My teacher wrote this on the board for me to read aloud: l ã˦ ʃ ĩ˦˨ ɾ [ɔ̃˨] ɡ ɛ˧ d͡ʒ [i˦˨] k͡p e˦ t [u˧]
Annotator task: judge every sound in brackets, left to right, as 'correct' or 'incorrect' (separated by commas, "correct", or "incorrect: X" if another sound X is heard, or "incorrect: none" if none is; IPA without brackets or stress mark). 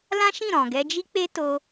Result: correct, incorrect: i˦, incorrect: o˧